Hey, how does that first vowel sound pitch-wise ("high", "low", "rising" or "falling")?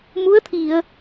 rising